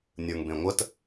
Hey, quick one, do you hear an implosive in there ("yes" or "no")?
no